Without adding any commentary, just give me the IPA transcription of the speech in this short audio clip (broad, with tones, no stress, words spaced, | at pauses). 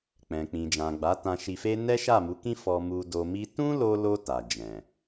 k͡pɛ̃˨k͡pĩ˨d͡ʒã˨ ɡ͡ba˨˦tã˧ʃi˧fe˦ nɛ˦ʃa˦˨mu˨˦kĩ˦ fɔ˧mu˧ do˧mi˦ tũ˦lo˧lo˧ ta˨d͡ʒɛ̃˨